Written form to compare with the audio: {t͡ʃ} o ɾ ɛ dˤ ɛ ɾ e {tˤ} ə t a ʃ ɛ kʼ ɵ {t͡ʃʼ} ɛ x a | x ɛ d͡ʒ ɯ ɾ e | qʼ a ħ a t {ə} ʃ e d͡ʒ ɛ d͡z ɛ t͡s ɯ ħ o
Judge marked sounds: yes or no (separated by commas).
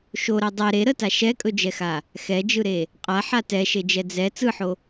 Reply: no, no, no, no